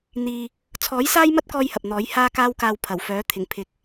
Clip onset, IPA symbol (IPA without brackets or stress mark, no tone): n̪